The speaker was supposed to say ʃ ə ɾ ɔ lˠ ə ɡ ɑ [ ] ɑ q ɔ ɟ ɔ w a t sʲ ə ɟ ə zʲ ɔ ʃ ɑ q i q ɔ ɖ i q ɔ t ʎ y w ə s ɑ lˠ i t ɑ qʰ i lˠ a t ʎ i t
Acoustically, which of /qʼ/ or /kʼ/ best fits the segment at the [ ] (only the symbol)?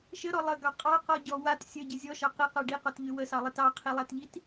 qʼ